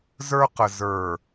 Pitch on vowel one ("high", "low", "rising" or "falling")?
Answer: high